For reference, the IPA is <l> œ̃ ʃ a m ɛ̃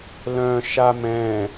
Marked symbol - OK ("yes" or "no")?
yes